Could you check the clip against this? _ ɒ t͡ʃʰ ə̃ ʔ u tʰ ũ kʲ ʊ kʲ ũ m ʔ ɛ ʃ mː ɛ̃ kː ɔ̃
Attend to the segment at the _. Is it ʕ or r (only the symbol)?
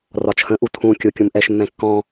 r